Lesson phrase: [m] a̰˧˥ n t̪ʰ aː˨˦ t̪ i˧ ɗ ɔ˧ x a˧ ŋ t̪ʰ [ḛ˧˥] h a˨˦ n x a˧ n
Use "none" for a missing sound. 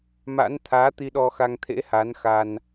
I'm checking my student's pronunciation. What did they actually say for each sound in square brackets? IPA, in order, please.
m, ḛ˧˥

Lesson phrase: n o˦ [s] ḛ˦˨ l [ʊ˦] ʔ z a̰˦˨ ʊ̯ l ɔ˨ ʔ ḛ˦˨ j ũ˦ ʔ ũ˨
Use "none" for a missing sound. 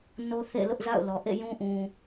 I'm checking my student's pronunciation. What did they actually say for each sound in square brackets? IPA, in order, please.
θ, ʊ˦

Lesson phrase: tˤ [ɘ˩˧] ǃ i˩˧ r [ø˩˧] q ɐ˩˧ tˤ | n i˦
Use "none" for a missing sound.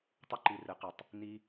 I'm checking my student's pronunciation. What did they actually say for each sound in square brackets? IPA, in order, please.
ɘ˦, ɘ˩˧

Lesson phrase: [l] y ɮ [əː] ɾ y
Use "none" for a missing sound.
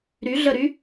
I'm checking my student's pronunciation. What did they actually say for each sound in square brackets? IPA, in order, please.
ɾ, ə

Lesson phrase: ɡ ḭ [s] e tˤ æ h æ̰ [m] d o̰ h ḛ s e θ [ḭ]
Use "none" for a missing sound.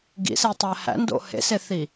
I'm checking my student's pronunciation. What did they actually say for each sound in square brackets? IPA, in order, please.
s, n, i

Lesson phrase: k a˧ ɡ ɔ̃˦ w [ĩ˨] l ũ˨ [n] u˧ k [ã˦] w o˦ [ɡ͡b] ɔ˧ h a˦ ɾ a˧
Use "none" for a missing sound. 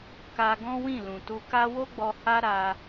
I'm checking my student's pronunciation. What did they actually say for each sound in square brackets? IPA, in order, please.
ĩ˦˨, t, a˦, ɡ͡b

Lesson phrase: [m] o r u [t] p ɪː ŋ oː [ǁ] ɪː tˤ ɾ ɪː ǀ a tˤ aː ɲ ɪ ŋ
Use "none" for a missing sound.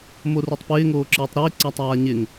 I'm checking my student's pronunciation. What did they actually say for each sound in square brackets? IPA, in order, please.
m, tˤ, ǁ

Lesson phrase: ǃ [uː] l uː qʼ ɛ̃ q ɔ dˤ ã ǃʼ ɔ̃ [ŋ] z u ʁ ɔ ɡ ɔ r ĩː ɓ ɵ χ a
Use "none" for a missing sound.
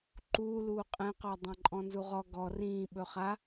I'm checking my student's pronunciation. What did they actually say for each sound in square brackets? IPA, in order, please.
uː, n

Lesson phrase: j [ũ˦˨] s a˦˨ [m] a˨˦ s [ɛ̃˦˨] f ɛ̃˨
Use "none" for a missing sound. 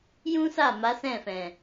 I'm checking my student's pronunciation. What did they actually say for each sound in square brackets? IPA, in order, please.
ũ˦, m, ɛ̃˦˨

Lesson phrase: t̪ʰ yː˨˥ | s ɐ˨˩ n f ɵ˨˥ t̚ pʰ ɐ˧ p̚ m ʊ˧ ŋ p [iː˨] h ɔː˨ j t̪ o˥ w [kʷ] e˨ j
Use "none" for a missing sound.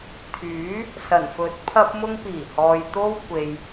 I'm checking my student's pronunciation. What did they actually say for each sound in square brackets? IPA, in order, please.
iː˨˩, kʷ

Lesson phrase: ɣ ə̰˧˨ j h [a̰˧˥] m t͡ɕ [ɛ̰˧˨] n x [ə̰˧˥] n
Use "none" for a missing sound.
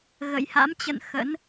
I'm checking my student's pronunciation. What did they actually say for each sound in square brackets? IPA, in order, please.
a̰˧˥, ə̰˧˨, ə̰˧˥

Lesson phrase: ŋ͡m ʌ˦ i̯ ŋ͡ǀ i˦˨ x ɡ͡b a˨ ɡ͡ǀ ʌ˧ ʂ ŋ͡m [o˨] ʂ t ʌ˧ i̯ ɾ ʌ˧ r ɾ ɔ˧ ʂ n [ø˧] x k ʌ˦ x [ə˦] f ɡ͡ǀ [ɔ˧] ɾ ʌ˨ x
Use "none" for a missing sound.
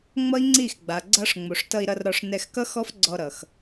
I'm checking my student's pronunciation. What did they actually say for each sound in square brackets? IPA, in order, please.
o˨, ɛ˧, ɔ˦, ɔ˧

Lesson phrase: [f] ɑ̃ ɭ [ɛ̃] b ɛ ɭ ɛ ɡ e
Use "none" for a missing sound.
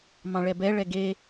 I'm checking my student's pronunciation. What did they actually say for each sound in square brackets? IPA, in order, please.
m, ɛ

